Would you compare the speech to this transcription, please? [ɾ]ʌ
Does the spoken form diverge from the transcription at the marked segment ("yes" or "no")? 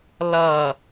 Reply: yes